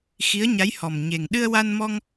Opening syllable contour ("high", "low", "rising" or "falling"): rising